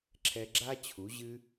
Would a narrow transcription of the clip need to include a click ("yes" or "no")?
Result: yes